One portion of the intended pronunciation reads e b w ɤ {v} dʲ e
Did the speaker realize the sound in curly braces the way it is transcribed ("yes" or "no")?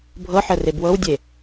no